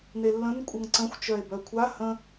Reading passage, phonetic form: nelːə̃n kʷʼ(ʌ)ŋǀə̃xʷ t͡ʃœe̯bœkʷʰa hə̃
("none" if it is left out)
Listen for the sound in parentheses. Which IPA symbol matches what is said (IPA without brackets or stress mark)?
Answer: ʌ